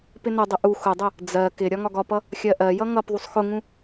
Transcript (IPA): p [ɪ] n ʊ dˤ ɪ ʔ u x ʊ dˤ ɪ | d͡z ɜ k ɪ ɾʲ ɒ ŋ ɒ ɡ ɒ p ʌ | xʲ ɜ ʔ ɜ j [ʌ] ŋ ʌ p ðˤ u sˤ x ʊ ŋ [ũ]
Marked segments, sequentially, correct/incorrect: correct, correct, correct

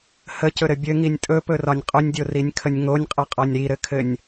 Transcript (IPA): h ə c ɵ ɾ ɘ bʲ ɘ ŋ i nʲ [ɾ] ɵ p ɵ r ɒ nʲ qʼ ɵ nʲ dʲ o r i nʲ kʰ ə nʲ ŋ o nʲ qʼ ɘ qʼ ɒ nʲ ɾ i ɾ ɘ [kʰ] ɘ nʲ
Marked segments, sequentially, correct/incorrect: incorrect: tʼ, correct

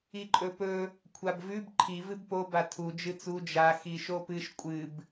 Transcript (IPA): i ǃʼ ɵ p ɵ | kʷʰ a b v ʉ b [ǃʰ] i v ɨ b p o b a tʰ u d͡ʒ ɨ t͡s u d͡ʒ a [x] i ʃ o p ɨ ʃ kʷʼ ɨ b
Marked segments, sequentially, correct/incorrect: correct, correct

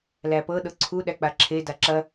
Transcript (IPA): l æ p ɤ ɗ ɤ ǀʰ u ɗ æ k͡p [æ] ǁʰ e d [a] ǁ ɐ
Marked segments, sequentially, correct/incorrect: incorrect: a, correct

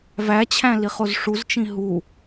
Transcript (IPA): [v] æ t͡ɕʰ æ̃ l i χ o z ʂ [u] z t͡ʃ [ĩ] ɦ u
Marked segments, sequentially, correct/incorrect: correct, correct, correct

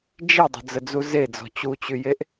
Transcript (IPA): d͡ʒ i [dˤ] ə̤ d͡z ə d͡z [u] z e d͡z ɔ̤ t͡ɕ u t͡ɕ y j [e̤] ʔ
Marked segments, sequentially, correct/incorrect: correct, correct, incorrect: e

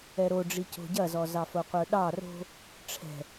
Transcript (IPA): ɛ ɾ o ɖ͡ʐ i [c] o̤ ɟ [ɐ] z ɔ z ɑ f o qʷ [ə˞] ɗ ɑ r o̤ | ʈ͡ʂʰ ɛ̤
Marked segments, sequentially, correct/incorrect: correct, correct, correct

